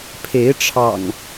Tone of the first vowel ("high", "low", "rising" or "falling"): rising